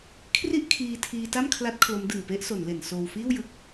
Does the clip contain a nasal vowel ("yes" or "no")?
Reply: no